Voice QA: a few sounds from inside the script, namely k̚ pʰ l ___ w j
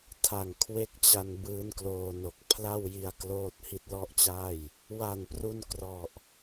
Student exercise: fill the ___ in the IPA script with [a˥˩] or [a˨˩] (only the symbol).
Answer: a˥˩